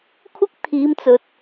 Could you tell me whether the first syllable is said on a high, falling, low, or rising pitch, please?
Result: high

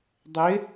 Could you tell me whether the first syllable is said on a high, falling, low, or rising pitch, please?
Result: rising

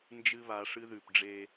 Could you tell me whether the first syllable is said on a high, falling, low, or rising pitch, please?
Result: high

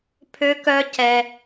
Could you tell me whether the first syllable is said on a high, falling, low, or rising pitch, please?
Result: high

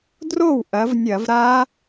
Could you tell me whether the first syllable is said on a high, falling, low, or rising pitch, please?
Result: falling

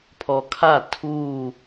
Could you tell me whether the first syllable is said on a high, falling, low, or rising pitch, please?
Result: low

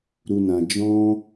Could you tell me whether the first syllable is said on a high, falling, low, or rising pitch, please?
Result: low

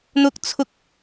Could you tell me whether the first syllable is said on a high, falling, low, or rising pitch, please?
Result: high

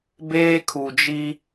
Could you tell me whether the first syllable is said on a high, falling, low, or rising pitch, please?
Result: high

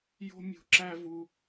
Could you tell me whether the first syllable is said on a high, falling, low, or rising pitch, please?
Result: high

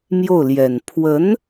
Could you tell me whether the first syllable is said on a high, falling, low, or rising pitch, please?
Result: falling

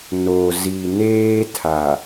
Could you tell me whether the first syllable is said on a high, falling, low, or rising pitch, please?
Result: low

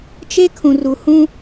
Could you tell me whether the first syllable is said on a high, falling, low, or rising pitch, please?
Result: high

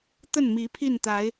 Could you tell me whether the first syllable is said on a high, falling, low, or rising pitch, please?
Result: falling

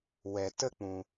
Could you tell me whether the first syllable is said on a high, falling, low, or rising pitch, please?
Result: low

